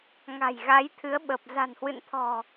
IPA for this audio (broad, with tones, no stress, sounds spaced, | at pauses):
ŋ a̤˨˩ j ɣ a˨˦ j t̪ʰ ɨ˨˦ ə̯ ɓ ə˨˩ p̚ z a̤˨˩ n h w ɨ̰˧˨ n t̪ʰ ɔ̤˨˩